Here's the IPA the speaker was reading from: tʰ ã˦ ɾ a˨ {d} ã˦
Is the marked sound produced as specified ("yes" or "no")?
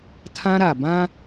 no